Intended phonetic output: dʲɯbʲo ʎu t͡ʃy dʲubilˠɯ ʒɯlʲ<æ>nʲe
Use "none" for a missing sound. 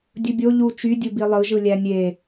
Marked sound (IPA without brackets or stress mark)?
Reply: æ